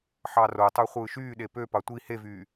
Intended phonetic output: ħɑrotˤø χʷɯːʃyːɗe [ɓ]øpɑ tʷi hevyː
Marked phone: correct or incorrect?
incorrect